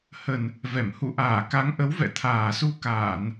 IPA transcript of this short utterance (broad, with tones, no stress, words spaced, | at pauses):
hə˨˩n | vɛ˧˩m hṵ˧˨ʔaː˧˩ ka˨˦ŋʔə˨˦wvɛ̰˧˨ t̪ʰaː˨˩su˧ kaː˧˩˨n